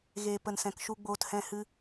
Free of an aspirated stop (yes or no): yes